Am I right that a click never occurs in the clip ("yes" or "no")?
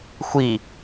yes